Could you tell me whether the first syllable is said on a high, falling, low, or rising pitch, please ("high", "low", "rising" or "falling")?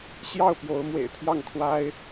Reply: falling